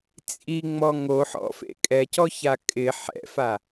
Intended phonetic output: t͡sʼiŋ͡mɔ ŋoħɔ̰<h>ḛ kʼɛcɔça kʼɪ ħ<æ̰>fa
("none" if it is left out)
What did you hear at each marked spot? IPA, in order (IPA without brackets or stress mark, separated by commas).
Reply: f, ɛ̰